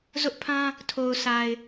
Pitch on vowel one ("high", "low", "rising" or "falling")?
high